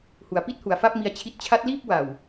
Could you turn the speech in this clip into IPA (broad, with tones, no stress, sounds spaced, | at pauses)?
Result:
h u˩˦ a̯ p i˥˩ t̚ h u˩˦ a̯ f a˥˩ p̚ m i˧ a̯ t͡ɕʰ i˦˥ t̚ t͡ɕʰ a˦˥ t̚ l iː˥˩ p̚ w a˨˩ w